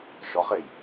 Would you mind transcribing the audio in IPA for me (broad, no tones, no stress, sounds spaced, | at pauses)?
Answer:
ʃ ɔ χ e j